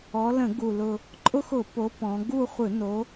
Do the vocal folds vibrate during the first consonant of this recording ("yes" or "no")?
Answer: yes